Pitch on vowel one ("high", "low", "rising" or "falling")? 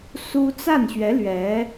high